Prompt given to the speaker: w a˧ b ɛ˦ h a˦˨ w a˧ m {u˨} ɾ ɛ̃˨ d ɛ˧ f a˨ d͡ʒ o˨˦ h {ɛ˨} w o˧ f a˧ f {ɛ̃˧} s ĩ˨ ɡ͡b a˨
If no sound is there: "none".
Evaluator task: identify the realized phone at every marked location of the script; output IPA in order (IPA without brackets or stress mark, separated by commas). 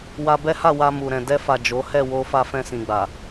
u˨, ɛ˦˨, ɛ̃˧